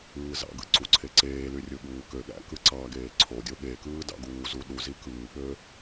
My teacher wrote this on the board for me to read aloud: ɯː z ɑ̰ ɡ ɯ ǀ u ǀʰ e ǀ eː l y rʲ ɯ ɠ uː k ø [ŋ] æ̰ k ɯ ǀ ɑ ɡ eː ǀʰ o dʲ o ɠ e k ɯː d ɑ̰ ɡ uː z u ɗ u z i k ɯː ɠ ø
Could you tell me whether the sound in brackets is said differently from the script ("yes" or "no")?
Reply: yes